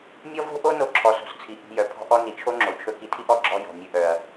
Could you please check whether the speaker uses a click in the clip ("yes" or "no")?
yes